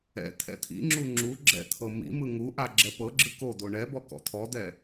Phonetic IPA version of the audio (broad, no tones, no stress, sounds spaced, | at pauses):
ɛ̰ t̪ʰ ɛ̰ t̪ʰ ḭ ŋ͡ǁ u ŋ͡ǁ u ɡ͡ǁ ɛ̰ t̪ʰ ɤ m ḭ m ɯ ŋ u ʔ a ɡ͡ǁ ɛ p ɤ ɡ͡ǁ ɯ k o d̪ o ɳ ɛ b ɔ k ɔ̰ t̪ʰ ɔ d̪ ɛ